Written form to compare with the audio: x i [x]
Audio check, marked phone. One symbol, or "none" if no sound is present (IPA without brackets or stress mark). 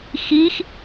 x